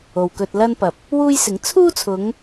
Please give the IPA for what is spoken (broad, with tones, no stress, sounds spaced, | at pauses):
o˨ w k ɵ˧ t̚ l ɐ˥ n p ɐ˨ p̚ | w uː˥ j s ɪ˨˥ ŋ t͡sʰ uː˥ t͡sʰ ʊ˨˧ ŋ